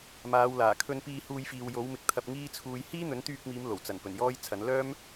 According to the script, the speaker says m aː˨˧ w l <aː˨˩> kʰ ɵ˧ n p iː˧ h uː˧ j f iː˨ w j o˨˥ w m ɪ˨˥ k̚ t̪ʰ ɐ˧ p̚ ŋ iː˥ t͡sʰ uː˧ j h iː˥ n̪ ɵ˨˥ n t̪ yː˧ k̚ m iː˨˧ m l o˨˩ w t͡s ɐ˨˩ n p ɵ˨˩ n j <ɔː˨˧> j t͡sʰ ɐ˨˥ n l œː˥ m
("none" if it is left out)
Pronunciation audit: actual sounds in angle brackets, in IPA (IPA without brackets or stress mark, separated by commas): aː˨˩, ɔː˥